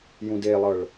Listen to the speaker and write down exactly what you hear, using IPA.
j ũ d e lˠ ɤ ɭ

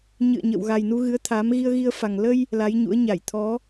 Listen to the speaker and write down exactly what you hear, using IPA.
ɲ ɨ̰˧˨ ə̯ ɲ ə̰˧˨ w ɣ a˨˩ j n u˧ ɣ ɨ˨˦ ə̯ t̪ʰ a˨˦ m ɣ i˧ ə̯ ɣ i˧ ə̯ f a˨˩ ŋ l ə˧ j | l a˨˦ j ɲ ṵ˧˥ ə̯ ɲ a˧˩ j t̪ʰ ɔ˨˦

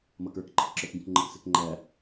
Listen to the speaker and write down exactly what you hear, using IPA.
m ʌ k ə˞ k ǃ i k ǁ ə˞ k ɡ ĩ k ŋ͡ǃ ə k s ɪ k ŋ͡ǃ æ

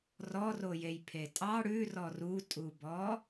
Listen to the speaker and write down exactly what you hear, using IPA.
r ɔ r o j e j pʰ e tʼ ɑ ɽ ʉ r ɔ r u tʼ u b ɔ

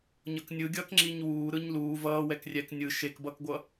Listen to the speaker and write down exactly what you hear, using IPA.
ɲ ʌ k nʲ ɯ ɡʲ ʌː k ŋ͡ǁ i ɲ w uː ɾ ɯ ɲ l uː v ʌː w ɛ k rʲ ɛ k nʲ ɯ ʃ e k b ʌ k ɡʷ ʌ

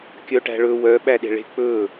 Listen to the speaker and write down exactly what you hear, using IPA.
kʲ œ ʈ æ̤ ɭ ɵ w œ ɓ æ ɗ e̤ ɭ e̤ k͡p ɵ

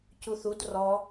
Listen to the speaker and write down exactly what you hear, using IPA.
c u θ u d r ɔ

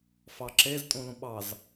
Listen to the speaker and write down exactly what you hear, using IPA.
f ɑ ǁ e z tʼ ũ l ũ ɓ ɑ z

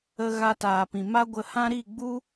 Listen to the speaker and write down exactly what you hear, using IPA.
ə˧ ɣ a˧ t aː˨ p ĩ˨ m a˦ ɡʷ ə˧ h ã˦ ɾ i˦˨ ɡ͡b u˦

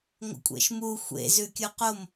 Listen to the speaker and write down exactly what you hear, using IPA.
ŋʷ ə̰ kʷʼ ḛ ʃ m u xʷ ḛ z ʉ kʲ u q o m

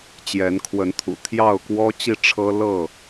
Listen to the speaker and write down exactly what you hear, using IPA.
t͡ɕ j ɛ˨˦ n kʰ w ə˨˦ n t̪ʰ ṵ˨˩ t̪ʰ j ɑ˥˨ ʊ̯ k w ɔ˦ t͡ɕ i˥˨ ʈ͡ʂʰ ɤ˦ l ɤ˥˨

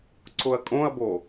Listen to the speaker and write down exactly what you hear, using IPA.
ǀ ʊ ɐ̯ kʼ õ ɐ̯ b o

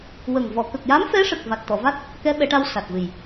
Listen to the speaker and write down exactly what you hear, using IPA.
w ə˨˩ ŋ v ɔ˨˩˨ k ə˨˩ k̚ j a˧˥ m f ɛ˧˥ ʂ ə˨˩ k̚ v a˨˩ t̚ t̪ ɔ˨˩˨ v a˦˥ t̚ | k ɛ˧˥ ɓ ɛ˨˩˦ ʈ a˧ w s a˨˩ t̚ v ɨ˨˩ j

